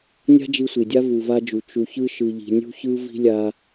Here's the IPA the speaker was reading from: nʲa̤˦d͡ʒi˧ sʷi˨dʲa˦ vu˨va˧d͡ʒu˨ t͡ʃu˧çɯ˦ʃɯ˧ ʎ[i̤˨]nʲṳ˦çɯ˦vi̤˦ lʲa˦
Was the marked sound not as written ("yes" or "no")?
yes